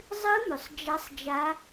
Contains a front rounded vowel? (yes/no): yes